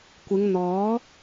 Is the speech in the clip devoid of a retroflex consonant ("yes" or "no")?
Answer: yes